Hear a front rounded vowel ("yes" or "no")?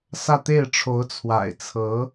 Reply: no